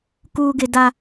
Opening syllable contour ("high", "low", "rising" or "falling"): low